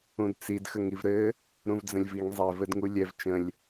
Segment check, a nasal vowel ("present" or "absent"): present